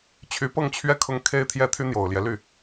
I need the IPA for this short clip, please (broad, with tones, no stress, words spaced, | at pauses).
t͡ɕʰy˧˥pɤ˥˧ŋt͡ɕʰɥɛ˥˩ kʰʊ˥ŋkʰe˥ɪ̯t̪ʰjɛ˥ t̪ʰy˥n̪jo˨˩ʊ̯ljɛ˦ly˥˩